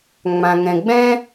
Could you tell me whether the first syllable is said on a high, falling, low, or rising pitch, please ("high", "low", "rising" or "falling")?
low